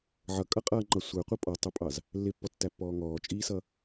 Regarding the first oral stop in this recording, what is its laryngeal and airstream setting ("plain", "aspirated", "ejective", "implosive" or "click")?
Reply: ejective